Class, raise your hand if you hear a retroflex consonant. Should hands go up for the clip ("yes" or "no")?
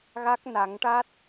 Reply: yes